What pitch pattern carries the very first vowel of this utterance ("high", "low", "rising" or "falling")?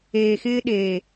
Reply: low